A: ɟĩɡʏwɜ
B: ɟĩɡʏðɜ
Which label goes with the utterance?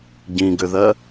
B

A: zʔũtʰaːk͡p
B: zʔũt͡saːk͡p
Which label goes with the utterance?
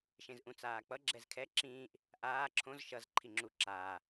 B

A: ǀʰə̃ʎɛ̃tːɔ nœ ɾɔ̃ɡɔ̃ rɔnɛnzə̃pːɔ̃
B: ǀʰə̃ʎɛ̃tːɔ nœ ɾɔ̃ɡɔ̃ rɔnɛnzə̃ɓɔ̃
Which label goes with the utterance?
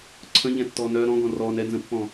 A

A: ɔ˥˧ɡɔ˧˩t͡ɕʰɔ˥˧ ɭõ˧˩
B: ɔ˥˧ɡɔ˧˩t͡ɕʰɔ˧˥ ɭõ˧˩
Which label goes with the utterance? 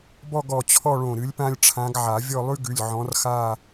A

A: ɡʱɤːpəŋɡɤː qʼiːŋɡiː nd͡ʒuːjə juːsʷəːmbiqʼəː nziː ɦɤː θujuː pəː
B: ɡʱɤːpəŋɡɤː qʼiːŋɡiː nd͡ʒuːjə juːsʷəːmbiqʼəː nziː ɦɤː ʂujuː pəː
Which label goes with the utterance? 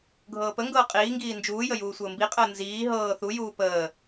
A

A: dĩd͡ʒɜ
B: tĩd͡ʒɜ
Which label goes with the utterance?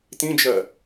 B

